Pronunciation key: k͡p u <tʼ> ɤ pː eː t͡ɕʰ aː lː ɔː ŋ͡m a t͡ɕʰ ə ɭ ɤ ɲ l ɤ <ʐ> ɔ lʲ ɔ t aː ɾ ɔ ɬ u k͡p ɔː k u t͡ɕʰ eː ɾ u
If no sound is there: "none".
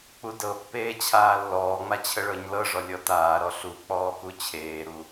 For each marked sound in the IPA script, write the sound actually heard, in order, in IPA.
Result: d, ʐ

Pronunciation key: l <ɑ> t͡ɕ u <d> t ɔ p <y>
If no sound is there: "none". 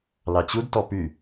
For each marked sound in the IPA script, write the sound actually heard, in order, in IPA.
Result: ɑ, d, y

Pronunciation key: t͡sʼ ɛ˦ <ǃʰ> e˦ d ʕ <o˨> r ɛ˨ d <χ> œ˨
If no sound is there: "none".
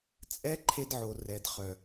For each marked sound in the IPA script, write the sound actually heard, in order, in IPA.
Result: ǃʰ, o˨, χ

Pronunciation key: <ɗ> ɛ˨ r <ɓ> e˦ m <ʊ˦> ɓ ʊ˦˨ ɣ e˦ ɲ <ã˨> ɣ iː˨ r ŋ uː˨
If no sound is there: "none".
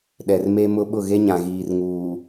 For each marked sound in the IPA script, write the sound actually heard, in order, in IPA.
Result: ɗ, m, ʊ˦, ã˨

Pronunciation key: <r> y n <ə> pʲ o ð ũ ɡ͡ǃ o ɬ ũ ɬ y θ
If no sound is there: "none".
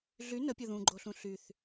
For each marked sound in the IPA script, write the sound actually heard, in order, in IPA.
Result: ɮ, ə

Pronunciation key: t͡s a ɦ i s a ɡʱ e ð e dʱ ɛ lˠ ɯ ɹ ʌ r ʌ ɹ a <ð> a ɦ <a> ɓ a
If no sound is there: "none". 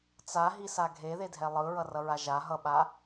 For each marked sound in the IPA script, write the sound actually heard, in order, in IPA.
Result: ʒ, ʌ

